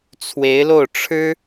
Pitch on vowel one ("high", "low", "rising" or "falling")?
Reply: rising